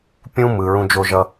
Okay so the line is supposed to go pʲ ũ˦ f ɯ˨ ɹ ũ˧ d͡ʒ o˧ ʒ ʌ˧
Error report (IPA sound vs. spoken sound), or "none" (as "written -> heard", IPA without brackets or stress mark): f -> m